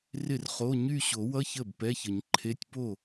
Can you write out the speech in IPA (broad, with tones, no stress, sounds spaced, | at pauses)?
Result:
r ɪ˥˩ r χ o˧˥˧ ɲ y˥˧ ɕ o˨˩˦ w ʌ˧˥˧ ç ə˥˩ b p ɛ˧˥˧ ç ə˨˩˦ ɲ ǃʰ e˧˥˧ tʲ p o˥˩